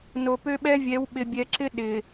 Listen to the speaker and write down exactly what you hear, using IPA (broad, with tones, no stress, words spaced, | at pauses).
no˨ pø˦ɓɛ˦vʲɛ˨˦w ɓɪ˨bʲɛ˨ǁɪ˦ ɗɪ˨